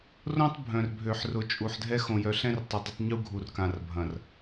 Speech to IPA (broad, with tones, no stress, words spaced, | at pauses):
rõ˦tˤ bʱœ̃˨rbʱø˨ħrʊ˨ t͡ʃʼu˨ħdʱɛ˦ xõ˨jœ˨ɬɛ̃˦rtˤɪ˨ dˤɪ˦tˤɲu˦ɡʱu˨rkã˨r bʱɐ̃˨r